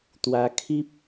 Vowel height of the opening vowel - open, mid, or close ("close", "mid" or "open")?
open